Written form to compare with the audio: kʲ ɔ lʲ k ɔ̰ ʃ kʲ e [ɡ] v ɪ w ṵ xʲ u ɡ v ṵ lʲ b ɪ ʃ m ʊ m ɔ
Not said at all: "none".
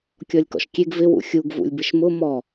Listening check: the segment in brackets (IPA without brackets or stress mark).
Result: ɡ